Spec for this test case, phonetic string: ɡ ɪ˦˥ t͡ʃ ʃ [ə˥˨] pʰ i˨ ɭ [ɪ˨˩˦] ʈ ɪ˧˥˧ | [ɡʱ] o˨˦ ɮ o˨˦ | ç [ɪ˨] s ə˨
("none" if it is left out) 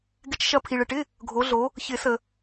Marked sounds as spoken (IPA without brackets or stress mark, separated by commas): ɐ˥˨, ɪ˨, ɡʱ, ɪ˨˩˦